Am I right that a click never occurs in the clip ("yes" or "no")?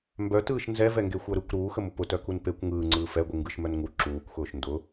no